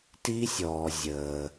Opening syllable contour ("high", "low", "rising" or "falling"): high